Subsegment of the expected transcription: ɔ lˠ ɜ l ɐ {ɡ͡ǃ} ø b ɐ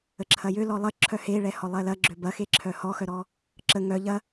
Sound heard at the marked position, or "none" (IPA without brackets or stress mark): ɡ͡ǁ